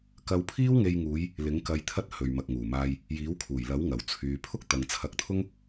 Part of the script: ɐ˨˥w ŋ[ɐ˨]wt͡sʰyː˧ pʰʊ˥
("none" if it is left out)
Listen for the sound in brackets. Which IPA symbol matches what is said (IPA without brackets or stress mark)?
ɐ˨